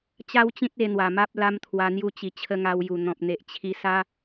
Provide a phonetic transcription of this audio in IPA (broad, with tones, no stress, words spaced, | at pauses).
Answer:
t͡ɕa˦wt͡ɕĩ˦t̚e˧n̪wa˨˩ ma˦p̚la˦mt̪ʰwa˧ n̪ju˧t͡ɕi˨˩ t͡ɕʰə˧ŋa˧wju˨˩ n̪ɔ̃˨p̚n̪e˨ʔ t͡ɕʰi˧sa˦